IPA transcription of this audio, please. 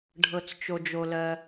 ɖʱ ɤ˩ t͡s t͡ʃ o˩ d͡ʒ o˩ l ɜ˩

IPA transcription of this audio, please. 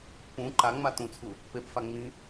p ũ ǃ a ŋ͡m a t ũ t͡sʰ u | p e p f a ŋ͡m ĩ

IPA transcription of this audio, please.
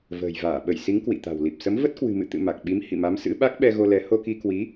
v ə̤ː˨˩ j v aː˧˩ ɓ ə˧˩ j s i˨˦ ŋ k w ḭ˧˨ t̪ a̤˨˩ w l i˨˩ p̚ s ə˨˦ m v ə˦˥ t̚ k w ɨ̤˨˩ m ɨ̰˧˨ t̪ ɨ̰˧˨ m a˨˩ k̚ ɓ i˨˦ m h ḭ˧˨ m a˨˦ m s ɨ̰˧˥ ɓ a˦˥ k̚ ɓ ɛ˧ ɣ o˧ l ɛ˨˦ h o˧ k i˧ k w i˨˦

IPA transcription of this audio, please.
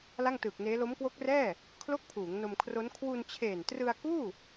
l a˥˩ ŋ t ɯː˨˩ k̚ n eː˦˥ l o˦˥ m k w o˦˥ k̚ r ɛː˥˩ | kʰ l o˥˩ k̚ pʰ uː˩˦ ŋ n o˧ m kʰ r o˦˥ n kʰ w u˧ n t͡ɕʰ eː˨˩ n t r ɯ˧ a̯ k uː˥˩

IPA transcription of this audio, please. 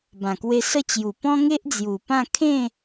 b ã˨˩ k w e˧ s ə˥˧ t͡ɕ j u˨˩ p ɔ̃˦ ŋ e˦ ʔ d͡z j u˨˩ p ã˥˧ kʰ ẽ˥˧

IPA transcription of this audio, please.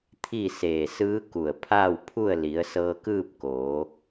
t̪ʰ i˥˨ s eː˧˩ s ɯː˧˥ k u˧˩ ə̯ pʰ aː˥˨ w pʰ u˥˨ ə̯ l i˩˧ ə̯ s ɤː˧ k ɯː˥˨ p̚ k oː˩˧

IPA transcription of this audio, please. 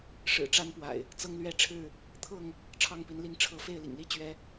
ʂ ɻ̩˨˩ ʈ͡ʂ a˦ n p w a̰˨˩ ɪ̯ | t͡s ɤ˦ ŋ l ɥ ɛ˦ ʈ͡ʂʰ ɻ̩˥˨ | t̪ʰ ɤ˥˨ ŋ | ʈ͡ʂʰ ɑ˥˨ ŋ p i˨˦ n l i˥˨ ŋ ʈ͡ʂʰ ɤ˨˦ f e˥˨ ɪ̯ l ḭ˨˩ ŋ l i˥˨ t͡ɕ ɥ ɛ˨˦

